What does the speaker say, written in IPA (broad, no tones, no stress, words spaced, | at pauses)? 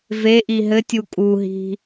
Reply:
veʔi ɦɘtʲu kʼuɦi̤